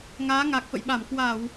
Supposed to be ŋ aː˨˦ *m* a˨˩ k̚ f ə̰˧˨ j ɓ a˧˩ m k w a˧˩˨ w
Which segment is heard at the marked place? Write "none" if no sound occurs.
ŋ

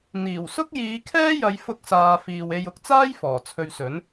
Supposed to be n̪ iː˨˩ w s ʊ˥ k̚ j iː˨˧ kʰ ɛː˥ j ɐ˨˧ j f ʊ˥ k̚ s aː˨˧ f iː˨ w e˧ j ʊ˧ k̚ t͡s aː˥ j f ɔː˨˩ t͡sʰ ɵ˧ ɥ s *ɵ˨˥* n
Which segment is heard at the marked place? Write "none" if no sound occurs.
ɵ˨˥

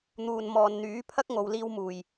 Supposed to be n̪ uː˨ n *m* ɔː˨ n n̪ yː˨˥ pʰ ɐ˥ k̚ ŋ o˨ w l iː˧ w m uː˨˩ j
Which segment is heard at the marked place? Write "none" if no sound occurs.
m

